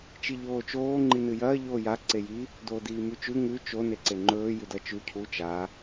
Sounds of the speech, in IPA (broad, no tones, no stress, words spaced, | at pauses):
t͡ʃiʎoːt͡ʃoː ŋ͡ǃinɨjɐː ʎoːja ǀeji | doːdiːmʉt͡ʃʉ ŋʉ t͡ʃo neǀeŋ͡ǃɵː jʉdɐt͡ʃʉ cʰu t͡ʃa